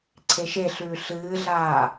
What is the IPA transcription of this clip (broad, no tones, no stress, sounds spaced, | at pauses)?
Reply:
ǀʰ e ʃ e ɬ ʉː ɬ ɨː ɮ aː